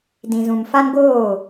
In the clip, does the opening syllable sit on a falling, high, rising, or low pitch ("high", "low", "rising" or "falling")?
low